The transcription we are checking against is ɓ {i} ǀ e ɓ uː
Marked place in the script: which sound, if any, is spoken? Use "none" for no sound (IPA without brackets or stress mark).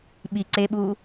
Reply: i